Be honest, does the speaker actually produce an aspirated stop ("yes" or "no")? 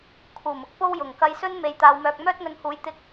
yes